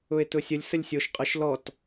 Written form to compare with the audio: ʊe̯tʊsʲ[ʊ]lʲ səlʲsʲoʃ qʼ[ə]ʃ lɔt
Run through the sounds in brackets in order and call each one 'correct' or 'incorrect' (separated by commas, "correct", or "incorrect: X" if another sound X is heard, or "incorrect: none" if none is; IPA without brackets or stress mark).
incorrect: ə, correct